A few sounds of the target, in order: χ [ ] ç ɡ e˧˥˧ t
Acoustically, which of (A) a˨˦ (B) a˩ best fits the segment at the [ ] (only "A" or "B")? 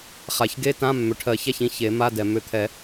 B